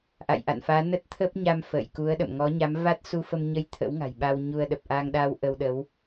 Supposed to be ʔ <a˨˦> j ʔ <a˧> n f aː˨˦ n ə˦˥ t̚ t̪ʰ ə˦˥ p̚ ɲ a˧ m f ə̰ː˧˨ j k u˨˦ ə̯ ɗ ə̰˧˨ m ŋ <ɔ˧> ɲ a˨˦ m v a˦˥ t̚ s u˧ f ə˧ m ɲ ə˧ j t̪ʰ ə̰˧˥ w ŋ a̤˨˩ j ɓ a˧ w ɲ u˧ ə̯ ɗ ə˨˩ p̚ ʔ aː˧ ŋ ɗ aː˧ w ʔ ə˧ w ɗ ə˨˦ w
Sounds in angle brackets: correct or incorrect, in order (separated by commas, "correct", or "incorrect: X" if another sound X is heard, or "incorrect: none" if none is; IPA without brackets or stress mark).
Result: incorrect: a̰˧˨, incorrect: a̰˧˨, incorrect: ɔ˨˦